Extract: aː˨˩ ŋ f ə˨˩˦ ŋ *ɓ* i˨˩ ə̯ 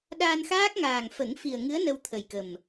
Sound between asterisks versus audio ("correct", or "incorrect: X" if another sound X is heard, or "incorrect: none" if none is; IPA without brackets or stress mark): incorrect: f